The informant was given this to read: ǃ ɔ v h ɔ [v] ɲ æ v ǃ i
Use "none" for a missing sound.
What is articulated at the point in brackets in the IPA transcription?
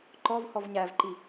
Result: v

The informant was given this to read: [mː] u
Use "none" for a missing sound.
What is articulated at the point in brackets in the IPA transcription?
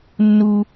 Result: nː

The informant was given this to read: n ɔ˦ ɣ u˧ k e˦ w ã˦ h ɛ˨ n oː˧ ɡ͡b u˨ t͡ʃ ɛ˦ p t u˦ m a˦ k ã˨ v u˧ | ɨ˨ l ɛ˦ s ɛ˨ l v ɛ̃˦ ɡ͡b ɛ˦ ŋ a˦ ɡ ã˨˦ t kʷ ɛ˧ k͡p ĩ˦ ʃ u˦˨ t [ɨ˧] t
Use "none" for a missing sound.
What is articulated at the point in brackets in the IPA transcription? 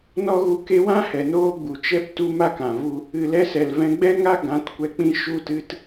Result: ɨ˧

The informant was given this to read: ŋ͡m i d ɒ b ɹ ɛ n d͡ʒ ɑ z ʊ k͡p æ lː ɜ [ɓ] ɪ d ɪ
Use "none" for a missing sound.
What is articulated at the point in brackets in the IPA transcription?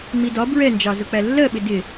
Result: ɓ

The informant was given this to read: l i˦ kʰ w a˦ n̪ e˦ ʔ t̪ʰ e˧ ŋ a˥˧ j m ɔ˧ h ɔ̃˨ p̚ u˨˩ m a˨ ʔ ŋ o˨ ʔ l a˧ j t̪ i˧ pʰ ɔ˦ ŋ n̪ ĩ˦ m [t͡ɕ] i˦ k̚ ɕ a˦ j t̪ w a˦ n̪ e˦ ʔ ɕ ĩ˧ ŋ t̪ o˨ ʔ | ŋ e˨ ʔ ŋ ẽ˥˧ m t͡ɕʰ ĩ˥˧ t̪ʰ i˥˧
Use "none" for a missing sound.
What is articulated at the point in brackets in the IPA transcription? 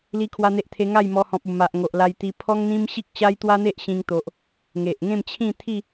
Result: ɕ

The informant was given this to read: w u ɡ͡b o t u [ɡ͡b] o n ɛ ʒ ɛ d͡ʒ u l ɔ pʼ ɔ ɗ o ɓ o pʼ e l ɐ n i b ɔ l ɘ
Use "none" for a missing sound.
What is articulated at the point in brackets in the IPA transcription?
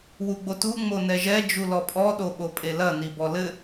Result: ŋ͡m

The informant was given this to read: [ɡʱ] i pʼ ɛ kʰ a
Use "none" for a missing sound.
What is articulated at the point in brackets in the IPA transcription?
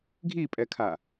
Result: ɡʱ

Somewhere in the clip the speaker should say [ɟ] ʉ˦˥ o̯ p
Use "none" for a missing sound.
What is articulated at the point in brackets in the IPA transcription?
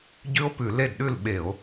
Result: ɟ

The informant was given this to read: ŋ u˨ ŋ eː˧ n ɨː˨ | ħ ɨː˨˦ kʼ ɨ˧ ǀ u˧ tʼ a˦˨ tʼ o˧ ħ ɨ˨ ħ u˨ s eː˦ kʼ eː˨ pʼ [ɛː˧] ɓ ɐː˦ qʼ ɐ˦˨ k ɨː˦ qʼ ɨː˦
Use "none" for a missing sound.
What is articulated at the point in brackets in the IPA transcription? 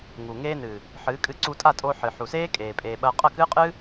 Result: eː˧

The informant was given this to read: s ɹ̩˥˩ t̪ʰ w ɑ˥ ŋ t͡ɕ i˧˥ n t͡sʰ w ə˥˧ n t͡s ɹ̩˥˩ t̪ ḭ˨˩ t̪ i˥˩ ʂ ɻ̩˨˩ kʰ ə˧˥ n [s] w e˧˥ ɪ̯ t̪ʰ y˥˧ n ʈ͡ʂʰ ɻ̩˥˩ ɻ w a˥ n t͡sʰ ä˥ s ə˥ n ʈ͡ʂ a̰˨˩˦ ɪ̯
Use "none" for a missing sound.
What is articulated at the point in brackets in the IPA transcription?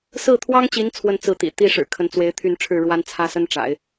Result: t͡s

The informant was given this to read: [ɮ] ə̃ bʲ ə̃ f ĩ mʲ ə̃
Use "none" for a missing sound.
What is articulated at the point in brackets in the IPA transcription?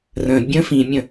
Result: r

